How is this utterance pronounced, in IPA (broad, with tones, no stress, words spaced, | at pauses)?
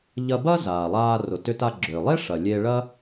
ʎɐ˧ bɐ˥ zaː˩lˠaː˧ rʊ˩tʏ˧ta˧ ɡ͡ǁʏː˩lˠe˥ ʂɐ˩lʲe˧ ɭɐ˥